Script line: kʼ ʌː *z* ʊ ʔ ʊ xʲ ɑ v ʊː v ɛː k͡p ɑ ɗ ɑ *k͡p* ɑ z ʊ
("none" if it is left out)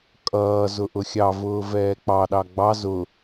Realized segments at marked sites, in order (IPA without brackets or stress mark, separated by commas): z, ɡ͡b